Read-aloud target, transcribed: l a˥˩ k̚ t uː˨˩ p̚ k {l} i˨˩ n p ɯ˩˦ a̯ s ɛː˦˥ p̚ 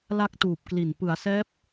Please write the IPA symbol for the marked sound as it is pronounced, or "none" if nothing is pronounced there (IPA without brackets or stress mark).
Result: l